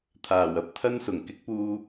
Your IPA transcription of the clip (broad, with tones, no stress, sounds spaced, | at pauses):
t̪ʰ aː˨˩ w ɐ˧ p̚ t̪ʰ ɐ˥ n s ʊ˨˩ ŋ k ɪ˨˥ k̚ p uː˧